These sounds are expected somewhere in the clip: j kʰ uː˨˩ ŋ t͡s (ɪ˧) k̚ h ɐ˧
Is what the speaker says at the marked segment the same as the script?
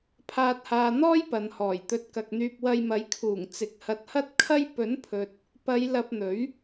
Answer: no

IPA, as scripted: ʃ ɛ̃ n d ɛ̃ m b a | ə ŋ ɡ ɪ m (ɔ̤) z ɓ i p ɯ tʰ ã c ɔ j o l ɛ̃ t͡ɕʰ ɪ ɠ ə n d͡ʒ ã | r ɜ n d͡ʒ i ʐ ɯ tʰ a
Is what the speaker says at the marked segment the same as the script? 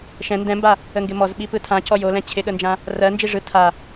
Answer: no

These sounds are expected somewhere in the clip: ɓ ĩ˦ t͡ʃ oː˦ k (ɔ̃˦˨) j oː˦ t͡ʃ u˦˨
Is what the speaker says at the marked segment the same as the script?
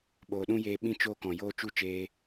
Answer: no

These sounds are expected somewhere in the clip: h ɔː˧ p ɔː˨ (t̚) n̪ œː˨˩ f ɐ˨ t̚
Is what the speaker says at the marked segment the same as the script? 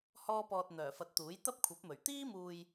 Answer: yes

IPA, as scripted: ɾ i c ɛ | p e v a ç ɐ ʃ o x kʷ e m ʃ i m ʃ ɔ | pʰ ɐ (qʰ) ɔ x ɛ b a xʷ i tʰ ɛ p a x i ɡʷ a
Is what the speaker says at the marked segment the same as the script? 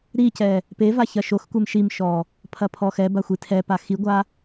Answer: no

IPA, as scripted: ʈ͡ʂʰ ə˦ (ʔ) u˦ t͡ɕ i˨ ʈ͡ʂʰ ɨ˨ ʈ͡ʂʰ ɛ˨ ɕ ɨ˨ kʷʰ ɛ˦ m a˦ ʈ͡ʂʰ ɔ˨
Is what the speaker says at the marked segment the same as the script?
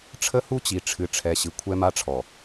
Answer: no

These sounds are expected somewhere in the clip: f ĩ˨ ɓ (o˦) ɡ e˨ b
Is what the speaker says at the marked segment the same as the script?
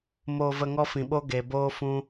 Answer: yes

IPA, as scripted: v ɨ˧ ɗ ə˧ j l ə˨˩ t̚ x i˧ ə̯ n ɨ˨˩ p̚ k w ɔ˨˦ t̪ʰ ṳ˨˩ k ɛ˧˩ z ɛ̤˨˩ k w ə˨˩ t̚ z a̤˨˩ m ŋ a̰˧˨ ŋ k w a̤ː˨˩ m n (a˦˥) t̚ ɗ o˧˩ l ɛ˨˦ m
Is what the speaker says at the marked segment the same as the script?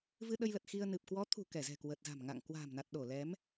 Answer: no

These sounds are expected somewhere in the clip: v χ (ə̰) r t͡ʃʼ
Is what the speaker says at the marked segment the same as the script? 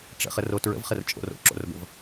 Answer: no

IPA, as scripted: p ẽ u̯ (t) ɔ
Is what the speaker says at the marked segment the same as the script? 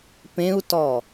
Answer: yes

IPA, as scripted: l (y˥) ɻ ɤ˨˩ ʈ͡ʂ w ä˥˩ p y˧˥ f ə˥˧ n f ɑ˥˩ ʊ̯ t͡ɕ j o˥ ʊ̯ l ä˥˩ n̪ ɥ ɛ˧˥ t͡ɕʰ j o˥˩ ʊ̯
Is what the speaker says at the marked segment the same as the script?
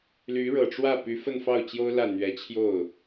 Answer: no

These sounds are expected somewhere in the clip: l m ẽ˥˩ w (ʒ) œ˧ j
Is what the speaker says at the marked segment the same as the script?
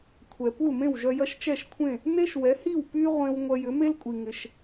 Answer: yes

